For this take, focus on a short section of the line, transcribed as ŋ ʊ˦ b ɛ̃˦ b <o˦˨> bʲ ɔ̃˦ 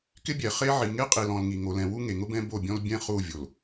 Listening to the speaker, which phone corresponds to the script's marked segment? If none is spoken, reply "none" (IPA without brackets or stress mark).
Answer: o˦˨